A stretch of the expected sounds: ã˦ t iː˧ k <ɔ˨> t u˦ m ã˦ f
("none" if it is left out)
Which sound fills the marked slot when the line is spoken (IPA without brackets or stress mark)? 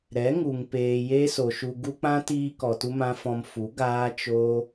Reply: ɔ˨